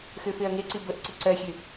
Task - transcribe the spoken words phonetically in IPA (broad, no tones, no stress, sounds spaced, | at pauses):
x ø f e ɐ̯ ŋ e ǀ i b ə ʔ ǀ ə ǀ ɜ xʲ ø